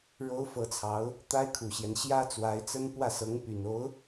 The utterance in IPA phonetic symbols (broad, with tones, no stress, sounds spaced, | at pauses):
ɻ o˧˥ ʊ̯ f ɤ˧˥ t͡sʰ ɑ˧˥ ʊ̯ | t̪ a˥ ɪ̯ kʰ u˨˩ ɕ j ɛ˦ n ɕ j ä˥ t͡s w a˧˥ ɪ̯ t͡s ə˥ n p w ä˥˩ s ɤ˧˥ ŋ p y˨˩ n o˧˥ ʊ̯